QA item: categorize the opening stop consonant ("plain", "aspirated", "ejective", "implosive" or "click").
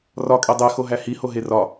ejective